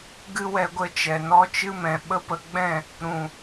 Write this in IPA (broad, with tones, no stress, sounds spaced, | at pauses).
ɡ ɨ˦ w ɛ˧ ɡʷ ə˧ t͡ʃ ɛ˨ n ɔ˧ t͡ʃ ɨ˧ m ɛ̃˨ ɓ ə˦ p ə˧ ɡ͡b ɛ̃˦˨ | ɾ ũ˨